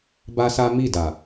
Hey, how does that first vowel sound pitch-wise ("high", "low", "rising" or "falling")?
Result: high